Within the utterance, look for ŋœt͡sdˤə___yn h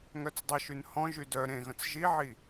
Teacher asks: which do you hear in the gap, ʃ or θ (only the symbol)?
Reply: ʃ